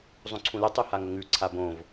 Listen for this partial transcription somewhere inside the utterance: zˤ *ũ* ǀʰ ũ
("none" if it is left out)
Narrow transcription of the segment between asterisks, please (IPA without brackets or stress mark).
ũ